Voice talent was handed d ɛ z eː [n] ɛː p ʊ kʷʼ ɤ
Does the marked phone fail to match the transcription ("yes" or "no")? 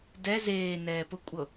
no